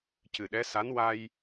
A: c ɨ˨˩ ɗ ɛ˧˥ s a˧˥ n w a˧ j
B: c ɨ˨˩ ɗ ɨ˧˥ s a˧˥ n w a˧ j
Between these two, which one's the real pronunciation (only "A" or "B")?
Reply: A